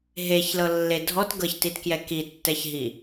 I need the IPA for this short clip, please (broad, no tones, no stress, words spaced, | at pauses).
ɦeçlɤlːe dʱɔt ɡɤçtitkjɛ kitːɛçɦi